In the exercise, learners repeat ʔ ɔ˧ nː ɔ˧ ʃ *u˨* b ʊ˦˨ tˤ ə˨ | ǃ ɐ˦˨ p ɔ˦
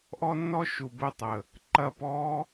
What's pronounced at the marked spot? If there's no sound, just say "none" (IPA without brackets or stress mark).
u˨